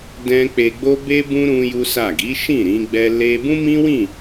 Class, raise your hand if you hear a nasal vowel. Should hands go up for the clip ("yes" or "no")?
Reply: yes